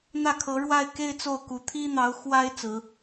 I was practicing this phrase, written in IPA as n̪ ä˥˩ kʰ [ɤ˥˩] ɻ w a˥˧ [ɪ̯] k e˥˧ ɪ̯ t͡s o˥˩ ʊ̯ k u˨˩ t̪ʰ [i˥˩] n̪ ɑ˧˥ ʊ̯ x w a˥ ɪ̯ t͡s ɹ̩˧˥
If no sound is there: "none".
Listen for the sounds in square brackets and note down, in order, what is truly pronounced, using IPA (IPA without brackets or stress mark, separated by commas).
ɤ˧˥, ɪ̯, i˥